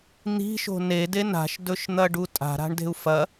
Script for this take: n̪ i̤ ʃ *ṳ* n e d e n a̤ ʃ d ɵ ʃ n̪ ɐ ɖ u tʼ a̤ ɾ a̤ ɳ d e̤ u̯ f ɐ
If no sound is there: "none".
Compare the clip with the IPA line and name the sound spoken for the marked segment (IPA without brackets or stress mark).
o̤